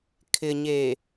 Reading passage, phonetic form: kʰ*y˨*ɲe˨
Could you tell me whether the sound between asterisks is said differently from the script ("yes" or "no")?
yes